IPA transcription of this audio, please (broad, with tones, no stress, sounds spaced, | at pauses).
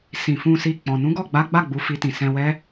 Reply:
s ĩ˨ f ũ˧ s i˧ k͡p ɔ̃˨ n ũ˨˦ ɡ ɔ˦˨ ɡ͡b a˨˦ ɡ͡b a˦˨ ɡ͡b u˨˦ f i˧ t ĩ˨ s ɛ̃˧ w ɛ˦